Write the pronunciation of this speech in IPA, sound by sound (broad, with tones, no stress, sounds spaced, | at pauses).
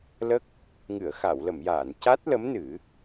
l ə˦˥ k̚ | ŋ ɨ˨˩˨ ə̯ x a˨˩˨ w l ə˨˩˨ m j aː˨˩˨ n c a˦˥ t̚ l ə˧˥ m n ɨ˨˩˦